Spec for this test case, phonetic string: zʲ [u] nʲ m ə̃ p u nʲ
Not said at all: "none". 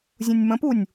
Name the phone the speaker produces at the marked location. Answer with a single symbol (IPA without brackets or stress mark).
ũ